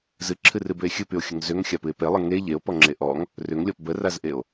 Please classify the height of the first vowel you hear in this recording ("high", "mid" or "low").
high